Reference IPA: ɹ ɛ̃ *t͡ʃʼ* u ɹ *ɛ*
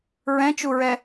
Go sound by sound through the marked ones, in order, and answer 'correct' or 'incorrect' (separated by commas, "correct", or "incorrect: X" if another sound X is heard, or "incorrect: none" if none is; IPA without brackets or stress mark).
incorrect: t͡ʃ, correct